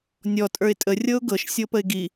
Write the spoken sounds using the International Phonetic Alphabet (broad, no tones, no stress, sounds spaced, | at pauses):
nʲ ɔ tʼ ə˞ ɪ̯ tʼ ə rʲ ɤ ʊ̯ ɡ ɤ ʃ sʲ ɤ p ə ɪ̯ ɡ i